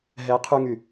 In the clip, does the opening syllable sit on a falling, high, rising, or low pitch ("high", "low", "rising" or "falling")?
rising